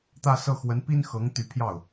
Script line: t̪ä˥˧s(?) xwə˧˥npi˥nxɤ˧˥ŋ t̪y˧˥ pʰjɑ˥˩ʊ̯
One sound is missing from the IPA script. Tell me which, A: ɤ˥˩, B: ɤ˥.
A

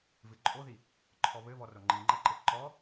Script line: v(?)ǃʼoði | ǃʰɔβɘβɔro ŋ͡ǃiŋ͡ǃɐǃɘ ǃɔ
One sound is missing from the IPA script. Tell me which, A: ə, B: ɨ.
B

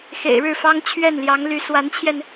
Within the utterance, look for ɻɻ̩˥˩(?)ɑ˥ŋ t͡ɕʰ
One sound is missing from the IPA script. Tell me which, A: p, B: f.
B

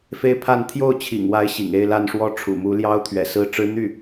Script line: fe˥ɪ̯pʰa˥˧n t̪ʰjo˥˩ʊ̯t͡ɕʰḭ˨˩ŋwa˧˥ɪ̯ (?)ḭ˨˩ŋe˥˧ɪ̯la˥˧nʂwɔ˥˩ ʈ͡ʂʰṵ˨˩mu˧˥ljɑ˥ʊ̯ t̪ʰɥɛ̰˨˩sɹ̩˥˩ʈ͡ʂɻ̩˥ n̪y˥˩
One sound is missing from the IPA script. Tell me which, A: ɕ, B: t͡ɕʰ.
A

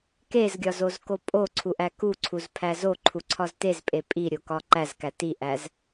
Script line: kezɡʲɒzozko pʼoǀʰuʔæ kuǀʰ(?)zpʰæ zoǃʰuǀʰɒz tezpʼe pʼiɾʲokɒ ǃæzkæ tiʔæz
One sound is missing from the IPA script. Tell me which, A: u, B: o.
A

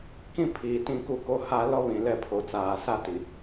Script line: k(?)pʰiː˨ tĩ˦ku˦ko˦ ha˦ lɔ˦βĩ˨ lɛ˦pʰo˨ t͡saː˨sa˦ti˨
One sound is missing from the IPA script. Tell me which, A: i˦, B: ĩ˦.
B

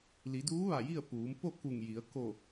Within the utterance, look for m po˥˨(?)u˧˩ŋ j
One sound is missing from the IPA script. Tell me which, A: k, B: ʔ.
A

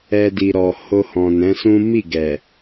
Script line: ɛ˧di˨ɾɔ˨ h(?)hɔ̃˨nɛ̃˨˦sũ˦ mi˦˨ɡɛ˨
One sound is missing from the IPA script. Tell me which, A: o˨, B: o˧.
B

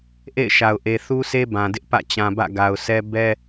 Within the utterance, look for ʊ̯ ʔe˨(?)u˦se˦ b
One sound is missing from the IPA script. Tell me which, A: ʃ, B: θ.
B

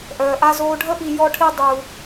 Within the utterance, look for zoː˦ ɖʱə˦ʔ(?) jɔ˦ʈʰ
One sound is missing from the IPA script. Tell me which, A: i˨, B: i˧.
B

